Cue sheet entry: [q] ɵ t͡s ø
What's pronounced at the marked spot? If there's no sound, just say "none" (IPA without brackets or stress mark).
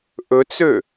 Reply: ʔ